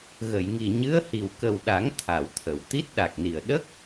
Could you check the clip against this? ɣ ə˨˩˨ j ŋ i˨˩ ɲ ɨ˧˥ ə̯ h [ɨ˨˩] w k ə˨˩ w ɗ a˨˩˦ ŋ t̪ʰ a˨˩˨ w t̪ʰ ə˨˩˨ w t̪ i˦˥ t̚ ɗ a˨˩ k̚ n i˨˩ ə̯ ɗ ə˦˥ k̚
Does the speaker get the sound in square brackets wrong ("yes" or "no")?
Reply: yes